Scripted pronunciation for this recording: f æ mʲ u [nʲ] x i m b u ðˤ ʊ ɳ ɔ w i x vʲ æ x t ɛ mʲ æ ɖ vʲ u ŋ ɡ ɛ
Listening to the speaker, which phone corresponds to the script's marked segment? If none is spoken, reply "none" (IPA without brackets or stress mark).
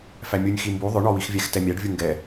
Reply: nʲ